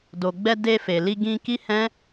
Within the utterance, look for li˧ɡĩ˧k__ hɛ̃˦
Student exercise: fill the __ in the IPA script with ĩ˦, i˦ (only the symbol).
i˦